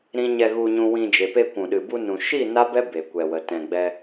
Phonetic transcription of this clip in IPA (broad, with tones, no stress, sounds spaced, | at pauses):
ɾ ĩ˦ ɲ ɛ˧ ɣ u˧ ɲ ũ˧ w ĩ˧ d͡ʒ e˨ p e˧ kʷ ũ˨ ɗ ɨ˨ b u˧ n ũ˨ ʃ i˦˨ n a˦ b ɛ˦ b e˨ kʷ ɛ˨ w ə˨ t ɛ̃˨ ɡ͡b ɛ˧